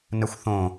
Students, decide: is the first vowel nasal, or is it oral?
oral